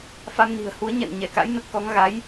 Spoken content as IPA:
f a˧ m n i̤˨˩ ə̯ h u˨˦ ə̯ ɲ ɛ̰˧˨ n ɲ ɛ˧˩ k a̰˧˥ j n ə˦˥ t̚ k ɔ˨˦ ŋ ɣ a˨˦ j

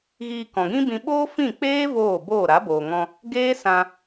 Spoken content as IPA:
ɣ iː˧ k ɔ̃˨ ɡ ĩ˦ b ĩ˧ ɓ oː˦ f ĩ˦˨ k͡p eː˦ v oː˦˨ b oː˦˨ ɾ a˨˦ b oː˨ ŋ ɔ̃˧ | ɡ eː˦ s ã˧

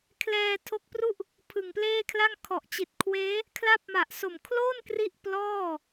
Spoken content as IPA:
kʰ l ɛː˧ tʰ o˦˥ k̚ p r u˥˩ ʔ | pʰ ɯ˨˩ ŋ p l eː˥˩ kʰ l a˥˩ ŋ kʰ ɔ˨˩ ʔ t͡ɕ i˨˩ t̚ kʰ w eː˦˥ | kʰ l a˦˥ p̚ m a˨˩ ʔ s o˨˩ m kʰ l o˥˩ n k r i˥˩ ʔ p l ɔː˥˩

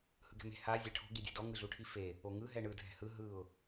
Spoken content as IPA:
h ɯ ɡ ɛ̤ m e̤ h a zʲ ɛ ʈʰ o̤ ɡ i dʲ ɛ̤ d ɔ ŋ ɯ ɮ u ʈʰ i f e | o ŋ ɯ ɦ ɛ ɳ ɯ dʱ ɛ̤ h ɯ ɦ ɯ ʊ̯

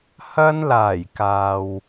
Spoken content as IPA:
h ɐ˧ n l aː˨˩ j k aː˨ w

